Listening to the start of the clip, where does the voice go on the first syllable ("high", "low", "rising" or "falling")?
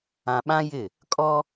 low